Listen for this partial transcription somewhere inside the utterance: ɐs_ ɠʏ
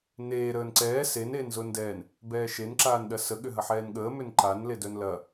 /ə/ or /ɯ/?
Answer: ə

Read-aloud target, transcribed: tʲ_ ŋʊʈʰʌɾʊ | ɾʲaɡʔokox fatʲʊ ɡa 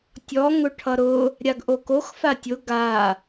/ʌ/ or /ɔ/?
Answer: ɔ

